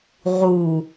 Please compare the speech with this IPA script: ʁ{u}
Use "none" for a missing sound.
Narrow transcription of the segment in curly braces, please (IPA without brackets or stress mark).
u